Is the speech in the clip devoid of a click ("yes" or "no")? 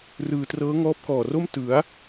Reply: yes